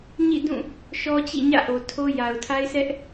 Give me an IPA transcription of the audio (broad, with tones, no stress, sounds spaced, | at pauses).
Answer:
ɲ ḭ˦˨ d ũ˦˨ | ʃ ɔ˦ t͡ɕ ḭ˦˨ ɲ ä̰˦˨ ʔ o˨ tʰ o˦ j a˨ ʊ̯ tʰ a˦ ɪ̯ sʰ ɛ˦ ʔ